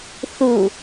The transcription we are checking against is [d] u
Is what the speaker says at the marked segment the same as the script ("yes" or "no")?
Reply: no